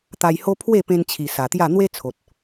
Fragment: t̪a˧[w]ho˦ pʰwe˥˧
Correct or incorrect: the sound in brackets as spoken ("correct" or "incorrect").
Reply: incorrect